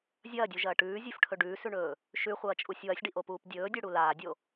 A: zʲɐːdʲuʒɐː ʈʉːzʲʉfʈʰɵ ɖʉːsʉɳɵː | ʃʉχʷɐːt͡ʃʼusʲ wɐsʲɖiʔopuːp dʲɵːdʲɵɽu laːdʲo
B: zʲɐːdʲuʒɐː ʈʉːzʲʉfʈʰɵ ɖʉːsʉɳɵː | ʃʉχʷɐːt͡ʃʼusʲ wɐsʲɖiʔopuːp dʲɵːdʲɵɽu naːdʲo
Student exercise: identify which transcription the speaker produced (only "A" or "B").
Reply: A